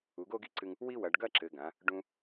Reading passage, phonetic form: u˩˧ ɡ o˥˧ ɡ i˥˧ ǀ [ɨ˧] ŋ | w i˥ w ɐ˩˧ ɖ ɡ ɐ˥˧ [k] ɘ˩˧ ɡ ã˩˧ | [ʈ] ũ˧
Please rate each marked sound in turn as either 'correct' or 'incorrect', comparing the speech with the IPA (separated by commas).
correct, incorrect, incorrect